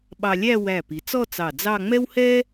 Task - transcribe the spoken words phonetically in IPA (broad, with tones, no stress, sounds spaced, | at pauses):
ɓ ɑ˧ lʲ æ˥˧ w æ˧˩ p i˩˧ t͡s ɔ˥˧ t͡s ɑ˧˩ d͡z ɑ˥˧ ŋ͡m ɛ˥ w h ɛ˥